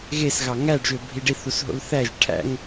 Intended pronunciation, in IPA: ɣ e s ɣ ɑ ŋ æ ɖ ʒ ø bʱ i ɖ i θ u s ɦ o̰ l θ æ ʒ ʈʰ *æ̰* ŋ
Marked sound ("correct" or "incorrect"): correct